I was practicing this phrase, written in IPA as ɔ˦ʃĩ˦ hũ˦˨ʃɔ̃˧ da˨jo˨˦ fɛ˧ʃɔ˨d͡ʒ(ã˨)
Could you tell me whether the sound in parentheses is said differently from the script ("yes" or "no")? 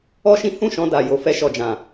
no